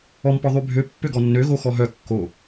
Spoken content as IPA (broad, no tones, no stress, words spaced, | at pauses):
ɔmpɔ ðˤybʱø pːøɡɔnːø ɣoxɔɦœ kːo